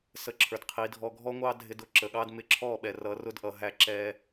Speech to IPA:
s ə˧ ǁʰ ə˞˨ d qʰ i˨˦ dʱ ɔ˧ ɡʱ ɔ˦ ŋʷ ɑ˦ dʱ ɪ˧ d ʊ˦ ǁ ə˨ ɠ ɑ˦ d m ɪ˧ ǁʰ ɔ˦˨ ɓ ɛ˨ r ʌ˨˦ r ʊ˦ d ʔ ʌ˨ ɦ æ˧ ǁ ɛ˧

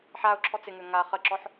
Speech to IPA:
ħ a ʊ̯ ǁʰ ɔ t͡s ɪ ŋ ø ŋ a χ ə ǁ ɔ ħ

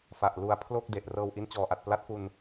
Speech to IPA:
f a˨˩ ʔ l u˦˥ a̯ pʰ l o˥˩ k̚ d e˨˩ ʔ r ɤː˧ w ʔ i˦˥ n t͡ɕ ɔː˨˩ ʔ a˨˩ t̚ p l a˦˥ t̚ f u˧ n

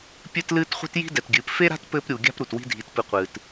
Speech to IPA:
pʲ ɨ˦ t l ɨː˦ t χʷ i̤˦ t j i̤˦ d ɛ˨ t ɡʲ ɨː˨ p f e˦ ɾ a̤˦ t p ɘː˦ p ɾʲ u˨ ɡʲ a̤˦ p ɾ u˨ t w i̤˦ dʱ i˨˦ t p ɨ˧ qʷ ɨː˨ t

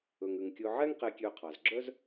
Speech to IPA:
ɵ˩ ŋ ʉ˩ ŋ kʲ ɵ˨ ʕ ɛ˦ ŋ q e˨ kʲ ø˨ qʰ ɑ˩ z ɡ͡ǁ œ˥ z

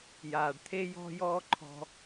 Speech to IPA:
j aː˩ ɖ t̪ʰ e˧ j ɔ̤˧ j ɔː˧ ǃʰ ɔ̤˧

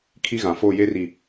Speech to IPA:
kʰ i˦ ɣ ã˨ f o˦˨ j e˦ r i˨

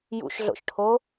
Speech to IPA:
j ṵ ʃ ɮ o̰ ʃ ʈʰ o

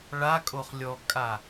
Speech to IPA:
ɭ a kʼ o χ lʲ ɔ kʼ a

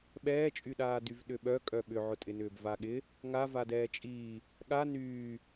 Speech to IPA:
ɓ ɛː t͡ʃʼ y ɗ aː d y v ɗ ʏ ɓ œ kʼ œ ɓ ʏ ʕ ʊ tʼ ɪ n ʏː b v a ɠ ɪ | ŋ a v a d ɛː t͡ʃʼ iː | ɠ a n yː

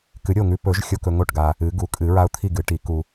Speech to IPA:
k ɨ˨˩˦ ɾʲ o˥˩ ŋ ʉ˧ p ɵ˨˩˦ ʒ xʲ o˧ k ɵ˧ ŋ o˥˩ ʈ ɡ a˧ | ɨ˨˩˦ ɡ u˨˩˦ kʼ ɨ˨˩˦ ɹ a˧ ʊ̯ t̪ʰ i˥˩ ɡ ɨ˨˩˦ ʈ i˨˩˦ k u˧

